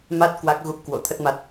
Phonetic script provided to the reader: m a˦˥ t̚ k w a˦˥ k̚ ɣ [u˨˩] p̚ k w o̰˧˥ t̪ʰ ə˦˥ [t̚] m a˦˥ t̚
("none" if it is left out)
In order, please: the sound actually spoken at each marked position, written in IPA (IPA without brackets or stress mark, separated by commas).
u˦˥, t̚